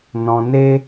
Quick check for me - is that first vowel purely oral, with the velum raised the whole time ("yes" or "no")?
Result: no